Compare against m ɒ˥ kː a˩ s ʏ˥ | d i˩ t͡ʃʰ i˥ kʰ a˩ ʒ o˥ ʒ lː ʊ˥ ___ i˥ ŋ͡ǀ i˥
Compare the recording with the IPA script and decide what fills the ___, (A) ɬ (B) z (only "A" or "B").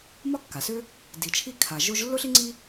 A